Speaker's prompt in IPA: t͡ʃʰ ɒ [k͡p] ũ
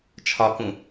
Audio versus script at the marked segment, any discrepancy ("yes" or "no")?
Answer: yes